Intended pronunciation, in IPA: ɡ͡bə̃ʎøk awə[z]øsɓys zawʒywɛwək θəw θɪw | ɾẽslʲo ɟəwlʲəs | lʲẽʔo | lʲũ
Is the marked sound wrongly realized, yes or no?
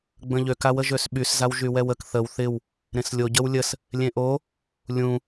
yes